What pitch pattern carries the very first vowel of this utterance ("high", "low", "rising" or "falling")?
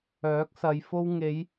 rising